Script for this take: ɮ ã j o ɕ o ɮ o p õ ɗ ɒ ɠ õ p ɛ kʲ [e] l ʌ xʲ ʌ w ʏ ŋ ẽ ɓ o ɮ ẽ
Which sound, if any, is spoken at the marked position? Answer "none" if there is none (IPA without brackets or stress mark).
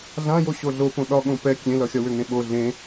ẽ